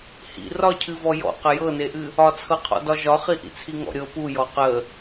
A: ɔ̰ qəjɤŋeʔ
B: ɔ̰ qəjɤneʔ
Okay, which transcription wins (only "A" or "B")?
B